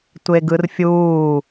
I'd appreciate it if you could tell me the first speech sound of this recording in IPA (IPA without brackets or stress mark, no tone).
tʷ